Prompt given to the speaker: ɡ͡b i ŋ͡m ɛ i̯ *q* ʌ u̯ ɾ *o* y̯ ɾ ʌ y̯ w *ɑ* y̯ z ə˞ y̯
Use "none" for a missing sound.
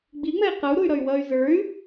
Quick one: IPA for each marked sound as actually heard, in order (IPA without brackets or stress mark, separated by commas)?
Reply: q, u, ʌ